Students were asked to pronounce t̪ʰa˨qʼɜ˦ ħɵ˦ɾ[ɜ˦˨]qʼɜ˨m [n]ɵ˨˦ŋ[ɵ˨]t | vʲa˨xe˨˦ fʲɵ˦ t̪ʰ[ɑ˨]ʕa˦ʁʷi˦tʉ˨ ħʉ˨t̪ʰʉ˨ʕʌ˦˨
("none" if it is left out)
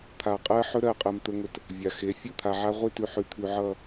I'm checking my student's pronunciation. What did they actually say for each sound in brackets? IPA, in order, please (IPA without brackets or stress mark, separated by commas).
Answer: ɜ˦˨, t̪, ɵ˨, a˨